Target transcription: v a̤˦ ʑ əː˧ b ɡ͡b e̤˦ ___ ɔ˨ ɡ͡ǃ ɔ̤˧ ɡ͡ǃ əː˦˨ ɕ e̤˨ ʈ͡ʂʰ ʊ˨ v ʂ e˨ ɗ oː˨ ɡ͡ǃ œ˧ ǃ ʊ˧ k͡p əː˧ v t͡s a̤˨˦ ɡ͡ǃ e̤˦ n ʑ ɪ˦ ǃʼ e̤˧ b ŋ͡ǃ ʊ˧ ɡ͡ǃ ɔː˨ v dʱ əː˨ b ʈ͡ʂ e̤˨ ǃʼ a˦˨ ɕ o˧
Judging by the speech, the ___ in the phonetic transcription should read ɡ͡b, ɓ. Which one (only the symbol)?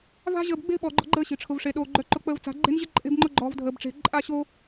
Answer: ɓ